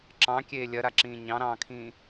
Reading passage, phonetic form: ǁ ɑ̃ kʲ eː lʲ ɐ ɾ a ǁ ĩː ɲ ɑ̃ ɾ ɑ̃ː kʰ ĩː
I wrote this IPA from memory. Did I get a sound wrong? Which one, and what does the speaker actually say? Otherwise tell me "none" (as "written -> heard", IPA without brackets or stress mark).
none